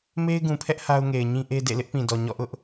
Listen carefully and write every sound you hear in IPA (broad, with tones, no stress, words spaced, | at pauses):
me˦ɪ̯ɡũ˨pʰɛ˦ʔ ha˦ʊ̯ŋe˨ɪ̯ɲĩ˦ ʔe˦dḛ˦˨ lɪ˦ʔpĩ˨dɔ˨ ɲɔ̰˦˨ʔʊ˦ʔ